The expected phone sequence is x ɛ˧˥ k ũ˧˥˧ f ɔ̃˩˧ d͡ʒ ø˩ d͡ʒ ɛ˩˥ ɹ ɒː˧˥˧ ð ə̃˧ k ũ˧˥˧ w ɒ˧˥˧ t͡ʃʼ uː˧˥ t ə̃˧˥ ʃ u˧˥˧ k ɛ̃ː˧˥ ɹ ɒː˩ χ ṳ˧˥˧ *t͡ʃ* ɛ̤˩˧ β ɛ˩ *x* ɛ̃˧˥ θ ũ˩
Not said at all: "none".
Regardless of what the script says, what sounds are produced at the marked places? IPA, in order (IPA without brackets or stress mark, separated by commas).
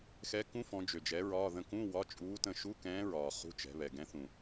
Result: t͡ʃ, ɡ